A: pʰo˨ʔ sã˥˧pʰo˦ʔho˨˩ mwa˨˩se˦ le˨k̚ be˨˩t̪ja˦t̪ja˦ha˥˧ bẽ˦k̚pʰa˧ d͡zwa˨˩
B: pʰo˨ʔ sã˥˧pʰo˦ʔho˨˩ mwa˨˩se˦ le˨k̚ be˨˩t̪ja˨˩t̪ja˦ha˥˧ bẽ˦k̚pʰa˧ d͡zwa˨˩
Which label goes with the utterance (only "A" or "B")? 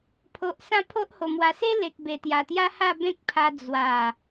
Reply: B